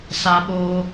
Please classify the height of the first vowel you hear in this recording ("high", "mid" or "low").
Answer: low